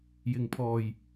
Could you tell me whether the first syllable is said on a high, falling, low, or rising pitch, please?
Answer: low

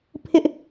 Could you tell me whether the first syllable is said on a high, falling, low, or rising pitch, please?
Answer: high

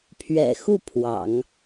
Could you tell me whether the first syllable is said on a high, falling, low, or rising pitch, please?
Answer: low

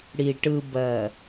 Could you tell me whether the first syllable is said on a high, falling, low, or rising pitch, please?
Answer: low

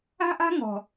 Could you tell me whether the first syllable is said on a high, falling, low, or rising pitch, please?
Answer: high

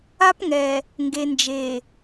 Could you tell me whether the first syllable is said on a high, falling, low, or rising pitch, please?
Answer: high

